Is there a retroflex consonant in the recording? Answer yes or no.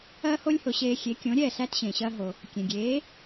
no